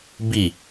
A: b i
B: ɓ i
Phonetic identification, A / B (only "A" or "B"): A